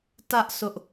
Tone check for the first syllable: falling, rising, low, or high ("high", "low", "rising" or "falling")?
high